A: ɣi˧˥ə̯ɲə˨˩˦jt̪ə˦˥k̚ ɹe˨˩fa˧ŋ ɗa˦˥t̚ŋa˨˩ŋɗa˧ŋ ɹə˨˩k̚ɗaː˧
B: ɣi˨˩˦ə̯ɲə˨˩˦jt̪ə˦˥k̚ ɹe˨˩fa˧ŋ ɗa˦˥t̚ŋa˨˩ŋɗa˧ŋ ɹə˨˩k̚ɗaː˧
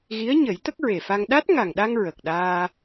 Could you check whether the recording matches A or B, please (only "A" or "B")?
A